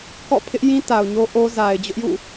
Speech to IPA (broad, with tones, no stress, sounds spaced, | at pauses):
k ɔ̰˦˨ pʰ ɪ˦ ʔ j ĩ˦ t a˨ ʊ̯ ɲ o˦ ʔ o˦ z a˨ ɪ̯ d͡ʑ ʊ˦ ʔ j ṵ˦˨